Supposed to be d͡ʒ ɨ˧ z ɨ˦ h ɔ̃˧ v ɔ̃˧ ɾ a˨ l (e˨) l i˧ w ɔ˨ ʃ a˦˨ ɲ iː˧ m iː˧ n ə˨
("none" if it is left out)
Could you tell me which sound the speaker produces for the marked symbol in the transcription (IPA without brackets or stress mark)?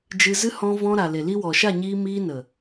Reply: e˨